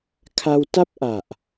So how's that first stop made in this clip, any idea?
aspirated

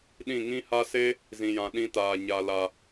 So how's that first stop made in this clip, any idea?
implosive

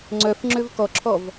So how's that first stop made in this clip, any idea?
click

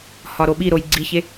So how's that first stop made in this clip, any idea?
implosive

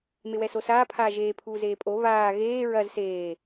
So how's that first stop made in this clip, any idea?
aspirated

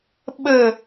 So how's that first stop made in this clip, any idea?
implosive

